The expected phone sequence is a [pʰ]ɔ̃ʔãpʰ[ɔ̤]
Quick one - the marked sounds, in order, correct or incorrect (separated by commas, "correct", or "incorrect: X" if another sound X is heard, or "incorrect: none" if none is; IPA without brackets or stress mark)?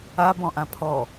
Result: incorrect: b, incorrect: ɔ